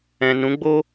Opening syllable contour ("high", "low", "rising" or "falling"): low